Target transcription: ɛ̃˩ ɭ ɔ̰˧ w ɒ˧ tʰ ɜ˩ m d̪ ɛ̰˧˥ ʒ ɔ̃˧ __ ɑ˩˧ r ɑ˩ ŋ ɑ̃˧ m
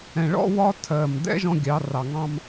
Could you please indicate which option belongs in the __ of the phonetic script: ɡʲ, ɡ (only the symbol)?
ɡʲ